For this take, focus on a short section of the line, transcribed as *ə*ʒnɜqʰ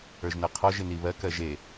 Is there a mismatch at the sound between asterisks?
yes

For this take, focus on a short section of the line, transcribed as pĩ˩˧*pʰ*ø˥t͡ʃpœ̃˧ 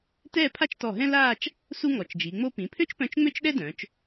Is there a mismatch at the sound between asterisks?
no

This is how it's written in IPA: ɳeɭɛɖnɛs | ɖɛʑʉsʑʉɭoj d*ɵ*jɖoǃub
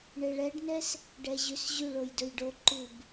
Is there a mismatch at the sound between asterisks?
no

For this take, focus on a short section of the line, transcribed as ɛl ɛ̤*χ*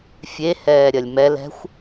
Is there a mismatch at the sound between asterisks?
yes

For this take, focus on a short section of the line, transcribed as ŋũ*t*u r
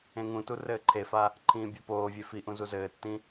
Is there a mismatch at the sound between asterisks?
no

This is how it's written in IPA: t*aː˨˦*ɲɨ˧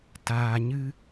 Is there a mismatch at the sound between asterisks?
yes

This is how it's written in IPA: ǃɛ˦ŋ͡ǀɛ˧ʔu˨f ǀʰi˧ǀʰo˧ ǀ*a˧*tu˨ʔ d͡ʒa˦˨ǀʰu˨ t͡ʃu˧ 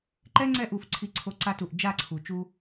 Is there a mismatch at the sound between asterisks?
no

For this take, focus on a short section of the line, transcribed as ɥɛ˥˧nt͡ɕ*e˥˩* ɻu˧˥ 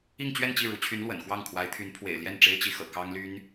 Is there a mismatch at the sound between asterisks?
yes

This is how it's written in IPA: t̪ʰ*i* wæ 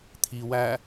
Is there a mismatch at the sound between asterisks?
no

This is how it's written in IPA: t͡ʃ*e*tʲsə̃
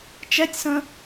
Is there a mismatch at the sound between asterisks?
yes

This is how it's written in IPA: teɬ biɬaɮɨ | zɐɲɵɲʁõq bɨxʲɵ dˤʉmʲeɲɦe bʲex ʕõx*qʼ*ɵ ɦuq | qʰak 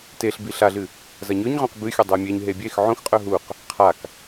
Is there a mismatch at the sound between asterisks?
no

